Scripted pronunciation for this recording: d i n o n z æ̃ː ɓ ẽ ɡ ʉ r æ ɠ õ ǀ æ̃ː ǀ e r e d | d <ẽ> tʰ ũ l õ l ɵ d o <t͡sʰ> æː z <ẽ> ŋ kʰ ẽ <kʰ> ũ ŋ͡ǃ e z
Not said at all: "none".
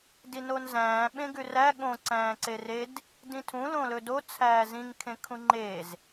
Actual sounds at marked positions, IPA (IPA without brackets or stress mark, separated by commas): ĩ, t͡sʰ, ĩ, kʰ